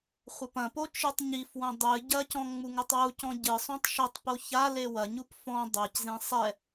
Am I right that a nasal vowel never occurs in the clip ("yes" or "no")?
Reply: no